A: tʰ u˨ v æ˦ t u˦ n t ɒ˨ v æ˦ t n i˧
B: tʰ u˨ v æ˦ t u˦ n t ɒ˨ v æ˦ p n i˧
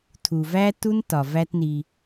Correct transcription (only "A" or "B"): A